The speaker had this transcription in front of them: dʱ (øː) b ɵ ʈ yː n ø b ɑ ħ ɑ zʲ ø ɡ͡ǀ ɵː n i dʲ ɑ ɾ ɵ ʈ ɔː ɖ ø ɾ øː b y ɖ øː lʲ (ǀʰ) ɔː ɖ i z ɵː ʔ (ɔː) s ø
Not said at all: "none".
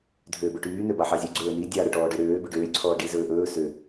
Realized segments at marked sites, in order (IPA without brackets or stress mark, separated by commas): øː, ǀʰ, ɵː